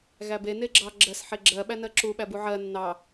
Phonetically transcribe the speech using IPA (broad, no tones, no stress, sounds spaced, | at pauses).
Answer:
ɣ æ b e n e ɡ͡ǁ ɑ ɡ͡ǁ ɜ s ħ e ɡ͡ǁ ɜ ɓ æ n ɜ ǁ u ɓ æ b u ʕ ɜ nː ɑ